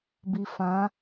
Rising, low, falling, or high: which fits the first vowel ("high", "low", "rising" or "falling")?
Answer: low